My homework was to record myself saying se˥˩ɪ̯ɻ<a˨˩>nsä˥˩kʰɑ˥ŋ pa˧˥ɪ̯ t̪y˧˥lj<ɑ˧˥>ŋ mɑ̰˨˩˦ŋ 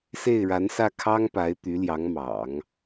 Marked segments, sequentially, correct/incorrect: incorrect: a˧˥, correct

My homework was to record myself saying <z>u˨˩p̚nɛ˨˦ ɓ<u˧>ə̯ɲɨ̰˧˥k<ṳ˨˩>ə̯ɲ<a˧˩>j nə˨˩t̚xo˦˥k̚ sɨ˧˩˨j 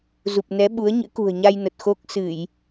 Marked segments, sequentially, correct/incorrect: correct, incorrect: u˨˦, correct, incorrect: a˧

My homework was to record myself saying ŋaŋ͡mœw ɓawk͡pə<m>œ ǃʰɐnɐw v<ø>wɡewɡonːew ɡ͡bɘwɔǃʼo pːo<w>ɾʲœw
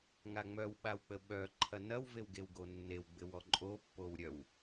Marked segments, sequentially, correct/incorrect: incorrect: ɓ, incorrect: e, correct

